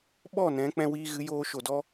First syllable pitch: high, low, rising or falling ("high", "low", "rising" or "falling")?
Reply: falling